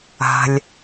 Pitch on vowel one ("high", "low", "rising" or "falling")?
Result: low